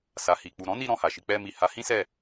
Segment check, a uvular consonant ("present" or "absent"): absent